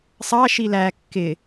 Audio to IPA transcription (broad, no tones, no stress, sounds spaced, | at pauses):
sˤ ɑ ʃ i l æ kː ɪ